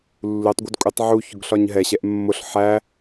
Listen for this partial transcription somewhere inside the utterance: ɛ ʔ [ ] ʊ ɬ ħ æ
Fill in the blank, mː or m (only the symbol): mː